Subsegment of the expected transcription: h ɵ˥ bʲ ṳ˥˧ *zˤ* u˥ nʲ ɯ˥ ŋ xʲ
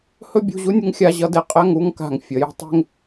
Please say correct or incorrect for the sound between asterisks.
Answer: incorrect